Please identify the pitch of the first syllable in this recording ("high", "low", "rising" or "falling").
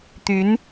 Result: rising